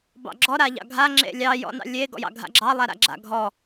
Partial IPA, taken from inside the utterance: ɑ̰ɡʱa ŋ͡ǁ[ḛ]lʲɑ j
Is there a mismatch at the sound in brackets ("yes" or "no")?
no